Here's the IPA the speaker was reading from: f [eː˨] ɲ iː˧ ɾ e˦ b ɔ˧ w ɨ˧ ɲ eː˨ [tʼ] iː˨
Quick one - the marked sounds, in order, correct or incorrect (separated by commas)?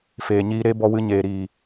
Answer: correct, incorrect